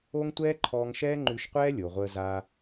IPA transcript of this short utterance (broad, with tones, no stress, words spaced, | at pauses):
o˦ŋ tʷɛː˦ǃʰɔː˧ŋ ʃɛː˦ŋ͡ǃʉ˧ʃqʷɛː˦ lʲo˨ʁʷəː˧ za˧